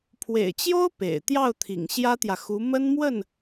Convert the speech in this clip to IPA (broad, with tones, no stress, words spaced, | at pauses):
pʰwḛ˨˩ɪ̯t͡ɕjo˥ʊ̯ pḛ˨˩ɪ̯ t̪jɑ˥˩ʊ̯t̪ʰḭ˨˩ŋ ɕjä˥t̪jä˨xu˧˥ mə˥nmwə˥˩n